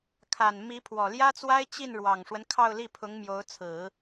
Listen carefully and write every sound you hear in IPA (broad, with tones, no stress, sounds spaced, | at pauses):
kʰ a˨˩ n m i˧˥ pʰ w ɔ˨˩ l j ä˥ t͡s w a˥ ɪ̯ t͡ɕ i˥˩ n ɻ w ɑ˨˩ ŋ ʂ w ə˦ n kʰ ɑ˥˧ ʊ̯ l i˥˩ pʰ ʊ˧˥ ŋ m j o˧˥ ʊ̯ t͡sʰ ɹ̩˨˩˦